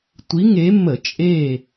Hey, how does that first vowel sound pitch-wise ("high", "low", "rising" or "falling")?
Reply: rising